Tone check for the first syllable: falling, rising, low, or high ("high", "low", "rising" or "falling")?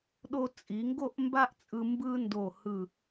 high